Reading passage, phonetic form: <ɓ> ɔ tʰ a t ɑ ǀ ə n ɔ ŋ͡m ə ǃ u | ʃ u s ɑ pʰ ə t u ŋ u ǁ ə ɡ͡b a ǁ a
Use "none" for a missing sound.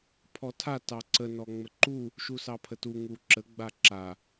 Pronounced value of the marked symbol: pʰ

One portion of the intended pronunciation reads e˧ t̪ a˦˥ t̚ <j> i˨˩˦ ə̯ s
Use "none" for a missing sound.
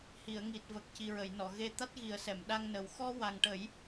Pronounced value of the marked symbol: ɣ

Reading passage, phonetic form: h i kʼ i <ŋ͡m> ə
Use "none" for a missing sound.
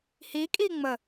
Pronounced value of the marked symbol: ŋ͡m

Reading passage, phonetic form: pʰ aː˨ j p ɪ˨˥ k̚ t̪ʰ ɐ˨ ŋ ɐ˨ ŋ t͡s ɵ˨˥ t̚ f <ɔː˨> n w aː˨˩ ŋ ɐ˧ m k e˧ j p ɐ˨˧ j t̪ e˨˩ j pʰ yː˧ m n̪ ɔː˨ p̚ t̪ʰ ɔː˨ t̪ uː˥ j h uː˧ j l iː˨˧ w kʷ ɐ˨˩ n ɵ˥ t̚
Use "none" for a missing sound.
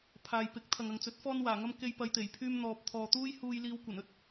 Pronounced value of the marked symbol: ɔː˧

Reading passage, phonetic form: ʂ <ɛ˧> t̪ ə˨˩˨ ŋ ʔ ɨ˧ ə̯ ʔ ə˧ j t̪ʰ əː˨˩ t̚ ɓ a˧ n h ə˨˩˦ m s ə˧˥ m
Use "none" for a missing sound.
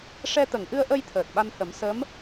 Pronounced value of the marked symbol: ɛ˧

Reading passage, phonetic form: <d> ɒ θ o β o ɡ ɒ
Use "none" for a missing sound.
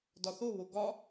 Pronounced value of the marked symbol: d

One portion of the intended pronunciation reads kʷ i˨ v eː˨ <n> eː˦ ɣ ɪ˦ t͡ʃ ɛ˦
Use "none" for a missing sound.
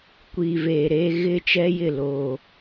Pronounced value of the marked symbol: ɾ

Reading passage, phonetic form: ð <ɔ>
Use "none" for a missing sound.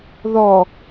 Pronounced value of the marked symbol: ɔ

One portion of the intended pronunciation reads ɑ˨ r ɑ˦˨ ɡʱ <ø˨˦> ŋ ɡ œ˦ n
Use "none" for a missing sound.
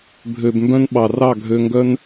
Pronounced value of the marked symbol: ø˧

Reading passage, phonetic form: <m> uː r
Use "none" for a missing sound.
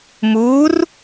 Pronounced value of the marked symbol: m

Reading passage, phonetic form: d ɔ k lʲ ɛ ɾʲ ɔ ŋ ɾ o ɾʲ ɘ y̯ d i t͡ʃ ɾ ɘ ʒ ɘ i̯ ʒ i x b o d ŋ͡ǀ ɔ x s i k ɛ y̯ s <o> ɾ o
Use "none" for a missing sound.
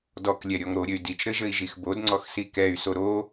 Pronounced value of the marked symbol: o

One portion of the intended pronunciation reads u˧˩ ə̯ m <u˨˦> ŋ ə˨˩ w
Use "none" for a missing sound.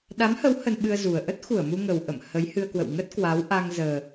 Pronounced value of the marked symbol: u˧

